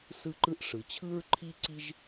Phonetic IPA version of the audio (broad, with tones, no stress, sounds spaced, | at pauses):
s ɯ˥ ǃ ɯ˥ ʔ ʂ ɯ˩ t͡ɕʰ ɯ˥ ɹ ǃʰ i˥ ǀ i˥ ʒ